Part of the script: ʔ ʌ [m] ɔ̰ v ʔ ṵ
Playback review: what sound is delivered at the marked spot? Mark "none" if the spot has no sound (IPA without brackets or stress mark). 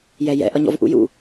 ɲ